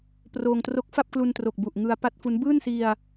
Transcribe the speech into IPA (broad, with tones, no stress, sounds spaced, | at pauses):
p r oː˧ ŋ t r o˦˥ k̚ f a˥˩ p̚ k l u˧ n t r o˨˩ k̚ b u˨˩ ʔ ŋ ɯ˦˥ a̯ p a˦˥ t̚ f u˦˥ n b ɯː˥˩ n s i˧ a̯